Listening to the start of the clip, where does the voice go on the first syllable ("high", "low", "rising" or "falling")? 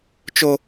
high